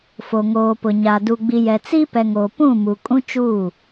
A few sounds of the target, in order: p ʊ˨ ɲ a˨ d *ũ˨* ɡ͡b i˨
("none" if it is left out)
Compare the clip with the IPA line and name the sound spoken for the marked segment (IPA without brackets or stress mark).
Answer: u˨